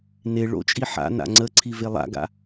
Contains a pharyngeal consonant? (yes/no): yes